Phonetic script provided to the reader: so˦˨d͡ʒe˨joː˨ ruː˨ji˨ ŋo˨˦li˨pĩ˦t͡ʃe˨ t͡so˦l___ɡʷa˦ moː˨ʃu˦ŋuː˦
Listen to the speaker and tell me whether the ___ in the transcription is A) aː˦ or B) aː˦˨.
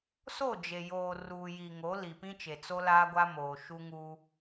A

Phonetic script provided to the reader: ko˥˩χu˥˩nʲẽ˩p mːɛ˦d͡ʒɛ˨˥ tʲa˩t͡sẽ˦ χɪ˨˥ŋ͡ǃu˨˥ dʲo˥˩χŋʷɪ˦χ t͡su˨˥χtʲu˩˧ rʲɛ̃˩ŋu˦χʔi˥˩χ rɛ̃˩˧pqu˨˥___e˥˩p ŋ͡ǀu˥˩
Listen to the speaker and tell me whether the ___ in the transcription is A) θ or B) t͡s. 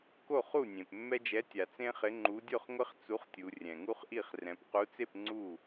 B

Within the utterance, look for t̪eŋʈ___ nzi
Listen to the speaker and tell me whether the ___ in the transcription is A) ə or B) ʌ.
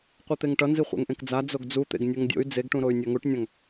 B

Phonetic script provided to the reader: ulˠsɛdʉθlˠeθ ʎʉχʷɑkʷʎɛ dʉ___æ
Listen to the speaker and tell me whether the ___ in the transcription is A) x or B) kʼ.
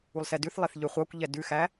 A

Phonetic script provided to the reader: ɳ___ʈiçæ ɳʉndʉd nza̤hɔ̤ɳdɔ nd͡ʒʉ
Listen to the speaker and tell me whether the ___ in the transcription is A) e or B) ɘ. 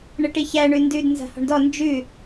B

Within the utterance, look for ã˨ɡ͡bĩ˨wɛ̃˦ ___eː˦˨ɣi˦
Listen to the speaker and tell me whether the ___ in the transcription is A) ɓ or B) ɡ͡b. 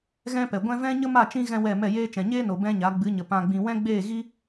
B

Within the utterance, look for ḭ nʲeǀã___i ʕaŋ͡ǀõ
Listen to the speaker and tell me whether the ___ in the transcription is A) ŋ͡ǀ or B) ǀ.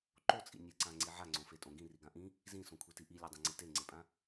A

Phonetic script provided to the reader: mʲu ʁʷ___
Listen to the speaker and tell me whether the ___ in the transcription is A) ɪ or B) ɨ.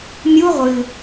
B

